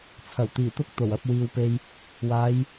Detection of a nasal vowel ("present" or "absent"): absent